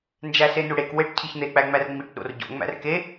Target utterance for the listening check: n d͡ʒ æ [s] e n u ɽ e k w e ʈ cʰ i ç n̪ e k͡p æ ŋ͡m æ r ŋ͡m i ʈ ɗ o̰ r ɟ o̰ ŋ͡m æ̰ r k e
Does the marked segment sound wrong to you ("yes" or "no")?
no